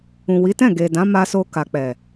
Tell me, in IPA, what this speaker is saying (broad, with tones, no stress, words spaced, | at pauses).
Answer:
ũ˨wi˨˦tɛ̃˦˨ ɡe˨dã˨˦ ma˧so˧ ka˨k͡pɛ˨